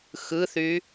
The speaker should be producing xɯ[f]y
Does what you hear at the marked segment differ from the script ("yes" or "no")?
yes